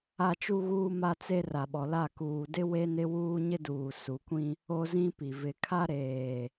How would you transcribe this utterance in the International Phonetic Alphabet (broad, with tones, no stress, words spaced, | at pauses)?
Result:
a˦t͡ʃu˦ɣuː˦ ma˦t͡se˦ ra˨ɓɔ˨la˦˨ kuː˨dɪ˦ we˦nɪ˦ wuː˦ɲɪ˦duː˨ su˨˦kʷĩ˦ | o˦zĩ˦pi˨ vɪ˨ kʰa˦ɾeː˨